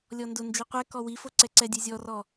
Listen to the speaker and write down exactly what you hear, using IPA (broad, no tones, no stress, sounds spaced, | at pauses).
lʲ ɔ n d ʊ n d͡ʒ i qʷ ɛ k ɔ w i f o ǀ ɛ ǀ ɛ dʲ ɛ zʲ ɔ r ɔ